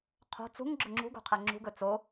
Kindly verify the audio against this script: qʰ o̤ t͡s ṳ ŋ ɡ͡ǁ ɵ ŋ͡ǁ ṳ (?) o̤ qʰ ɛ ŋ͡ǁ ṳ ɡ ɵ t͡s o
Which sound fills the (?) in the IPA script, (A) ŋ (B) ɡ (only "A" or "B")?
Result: B